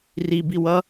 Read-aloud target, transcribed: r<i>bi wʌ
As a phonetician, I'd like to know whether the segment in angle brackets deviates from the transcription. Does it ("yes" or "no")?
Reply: no